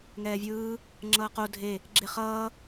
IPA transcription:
ŋ ɛː vʲ ɯː | ŋ͡ǁ ʌː q o dʱ e | ɡ͡ǁ e χ ʌː

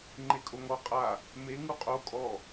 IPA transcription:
ŋ͡ǃ e kʼ o ŋ ɔ qʼ a | m e ŋ u qʼ o kʼ ɔ

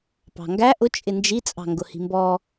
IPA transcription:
p ɑ̤ ŋ ɡ æ ʔ ʊ t͡ʃʼ ɪ n d͡ʒ i t͡sʼ ɑ̤ ŋ ɡ ʊ h i̤ m b ɔ

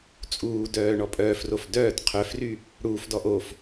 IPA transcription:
t͡sʼ uː d œː ɳ ɔ pʼ œː f r o f d œː t qʰ œ f r y | ɽ uː f d ɔ ʔ o f

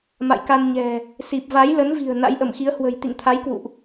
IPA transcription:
m a̰˧˨ j k a˧ n ɲ ɛ̤˨˩ | s i˨˩ p̚ v a˨˦ j l ə˨˦ n v i̤˨˩ ə̯ n a̰˧˥ j ʔ ə˧˩ m x i˨˦ ə̯ h w ə̤˨˩ j t̪ ḭ˧˨ ŋ t̪ʰ a˨˦ j k w ṵ˧˨ ʔ

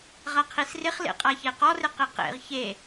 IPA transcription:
ʁ a qʰ i s r ɪ χ l ḛ qʼ a ç e q ɔ r ɪ q e q ḛ ʁ ç e

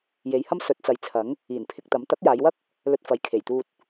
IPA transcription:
j e˨˧ j h ɐ˥ m s ɵ˨˥ t̚ t͡s ɐ˨˧ j t͡sʰ ɐ˨˥ ŋ | iː˨˩ n pʰ ɪ˧ k̚ t̪ ɐ˨˥ m t̪ ɐ˨˥ k̚ j aː˨˧ j w ɐ˥ k̚ | l ɵ˧ t̚ f ɐ˨˧ j kʰ e˨˩ j t̪ uː˧ t̚

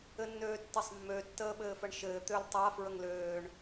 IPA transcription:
ɘ nː øː tː ɘ sˤ mː ø tː əː ɓ ɘː f ə ɳ ʃ ɘː t̪ ø l tˤ a f ɹ ə ŋ l øː ɳ

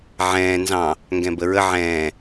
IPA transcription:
ʕ ɛ̃ː n z ɑ̃ | ŋ ɡ ɛ̃ b ə ɹ ə ʕ ɛ̃ː

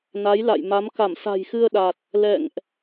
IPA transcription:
n a˨˦ j l a̰˧˨ j m a˨˦ m k a˧˩ m s a̤˨˩ j x ɨ˧ ə̯ ɗ a˨˩ t̚ | l ɛ̰˧˨ ŋ ʔ

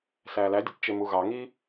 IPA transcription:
s æː l æ dʲ ɯ t t͡ʃ e m u ɣ ɑ ŋ iː

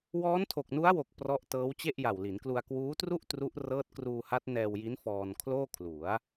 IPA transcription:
w ɔː˦˥ n tʰ o˨˩ k̚ n u˦˥ a̯ w o˨˩ k̚ p r ɔ˦˥ ʔ t ɤː˦˥ w t͡ɕ e˥˩ ʔ j a˨˩ w l i˩˦ n k l u˧ a̯ k w uː˦˥ t r u˥˩ ʔ t r u˦˥ ʔ r ɤː˦˥ t̚ k r uː˧ h a˦˥ t̚ n ɛː˧ w j i˦˥ n f ɔː˧ n kʰ l oː˥˩ kʰ l u˩˦ a̯

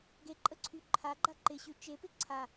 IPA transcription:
ɡ e ǃʼ ə ǀʰ y ǃʰ a ɡ͡ǃ a ǃ ɪ ɕ y t͡ʃ e p ɪ ǀʰ a

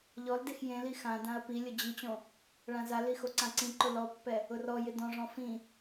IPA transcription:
ʎ ɔ l d e x j ẽ l i x ã d ã ɐ̯ p i lʲ ʊ d͡ʑ i t͡ɕ õ | ɭ ã z a l i x o ǀ ã ǀ ĩ ǃ ʊ l ɔ pː ɛ | ʊ r ɔ j ɪ d ɔ̃ ʐ ɔ̃ f ĩ

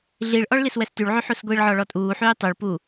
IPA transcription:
ɮ i ɭ ʔ ɔ ɭ l i s w ɛ s t y ɭ ʕ y ħ u s ɡʷ i ɭ ʕ ɔ ɭ ɔ tʼ uː ħ yː tˤ u ɭ p u

